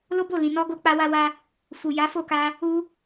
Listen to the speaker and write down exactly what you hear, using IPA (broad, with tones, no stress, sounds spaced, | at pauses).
l o˦ b o˦˨ l ĩ˨ n ɔ˧ ɡ o˧ k͡p a˧ w a˧ w a˧ | f u˨ j a˨˦ f o˦˨ k a˧ | u˧